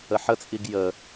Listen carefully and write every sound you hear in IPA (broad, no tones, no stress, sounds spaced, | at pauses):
ə ħ ə t͡sʼ i ɡ j ə